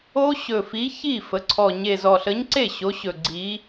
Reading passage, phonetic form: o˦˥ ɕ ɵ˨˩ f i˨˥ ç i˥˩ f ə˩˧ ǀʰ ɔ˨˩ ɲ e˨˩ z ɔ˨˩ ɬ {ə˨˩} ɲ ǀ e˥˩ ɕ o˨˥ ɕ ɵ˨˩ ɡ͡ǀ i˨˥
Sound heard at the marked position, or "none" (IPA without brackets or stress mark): ə˨˥